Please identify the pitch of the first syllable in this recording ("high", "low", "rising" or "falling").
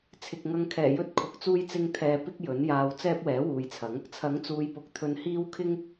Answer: low